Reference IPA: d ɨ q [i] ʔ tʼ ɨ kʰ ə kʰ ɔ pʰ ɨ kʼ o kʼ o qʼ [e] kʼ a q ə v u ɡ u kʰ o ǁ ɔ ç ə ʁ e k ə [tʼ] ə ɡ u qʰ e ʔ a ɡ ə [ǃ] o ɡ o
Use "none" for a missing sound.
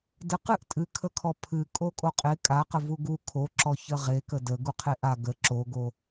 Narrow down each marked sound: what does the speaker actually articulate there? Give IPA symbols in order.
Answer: ɨ, e, d, ǁ

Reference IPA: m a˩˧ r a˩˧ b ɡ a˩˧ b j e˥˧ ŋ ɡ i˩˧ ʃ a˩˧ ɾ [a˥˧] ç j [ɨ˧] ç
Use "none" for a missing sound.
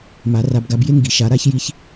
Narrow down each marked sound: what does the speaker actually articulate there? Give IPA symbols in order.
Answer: a˥˧, i˧

